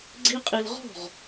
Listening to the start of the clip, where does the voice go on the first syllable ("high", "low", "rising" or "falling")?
high